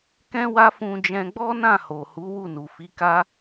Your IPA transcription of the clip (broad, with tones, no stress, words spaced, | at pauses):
kɛ̃˦wa˦fũ˧d͡ʒɛ̃˧ ɡ͡bɔ˦nã˦˨ho˨hu˨˦ wu˦˨nu˨fi˨˦ ka˦